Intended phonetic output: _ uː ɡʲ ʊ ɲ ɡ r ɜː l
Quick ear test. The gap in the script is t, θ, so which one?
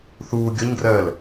θ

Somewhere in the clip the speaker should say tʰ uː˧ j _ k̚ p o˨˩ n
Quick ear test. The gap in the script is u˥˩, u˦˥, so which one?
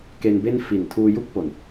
u˥˩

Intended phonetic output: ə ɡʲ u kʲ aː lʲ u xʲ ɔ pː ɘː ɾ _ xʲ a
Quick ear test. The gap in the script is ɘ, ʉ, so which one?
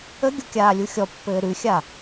ʉ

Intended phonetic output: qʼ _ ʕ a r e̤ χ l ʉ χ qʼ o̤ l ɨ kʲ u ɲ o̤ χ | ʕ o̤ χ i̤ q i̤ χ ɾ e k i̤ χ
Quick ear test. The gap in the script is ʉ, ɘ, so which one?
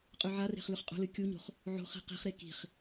ʉ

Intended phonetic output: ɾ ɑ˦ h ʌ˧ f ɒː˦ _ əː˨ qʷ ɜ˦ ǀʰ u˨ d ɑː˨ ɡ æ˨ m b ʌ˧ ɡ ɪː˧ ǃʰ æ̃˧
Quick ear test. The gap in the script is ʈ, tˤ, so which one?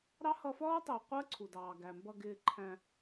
tˤ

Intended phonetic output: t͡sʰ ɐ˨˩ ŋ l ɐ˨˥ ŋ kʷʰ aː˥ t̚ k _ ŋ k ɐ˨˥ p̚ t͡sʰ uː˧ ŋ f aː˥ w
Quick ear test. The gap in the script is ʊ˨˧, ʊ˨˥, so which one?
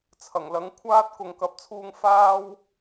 ʊ˨˧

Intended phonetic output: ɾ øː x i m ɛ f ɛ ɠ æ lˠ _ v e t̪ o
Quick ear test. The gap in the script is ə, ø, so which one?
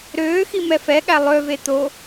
ø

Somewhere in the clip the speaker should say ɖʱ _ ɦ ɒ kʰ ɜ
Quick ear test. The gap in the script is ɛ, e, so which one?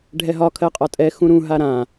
ɛ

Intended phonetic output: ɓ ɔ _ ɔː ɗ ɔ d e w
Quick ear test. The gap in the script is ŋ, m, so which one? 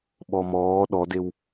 m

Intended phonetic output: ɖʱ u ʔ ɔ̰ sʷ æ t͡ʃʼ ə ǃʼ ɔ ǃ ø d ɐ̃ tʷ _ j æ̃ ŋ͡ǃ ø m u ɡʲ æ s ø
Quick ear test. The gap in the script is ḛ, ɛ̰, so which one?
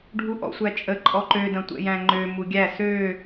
ɛ̰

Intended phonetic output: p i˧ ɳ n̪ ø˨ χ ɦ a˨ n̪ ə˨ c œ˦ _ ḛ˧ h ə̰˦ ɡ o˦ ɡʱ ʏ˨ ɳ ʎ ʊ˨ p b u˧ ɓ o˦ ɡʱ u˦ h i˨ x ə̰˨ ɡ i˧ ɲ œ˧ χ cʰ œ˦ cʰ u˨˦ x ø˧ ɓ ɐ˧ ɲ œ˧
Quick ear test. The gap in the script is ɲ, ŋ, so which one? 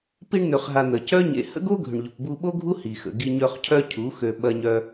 ɲ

